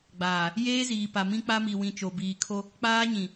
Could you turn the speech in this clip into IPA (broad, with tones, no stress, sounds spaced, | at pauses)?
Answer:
ɡ͡b aː˨ | j eː˦ z iː˨ p a˨ m ĩ˦ k͡p a˦ m i˨ w ĩ˨ t͡ʃ o˨ b iː˨ kʰ o˦ | k͡p aː˦ ɲ ĩ˨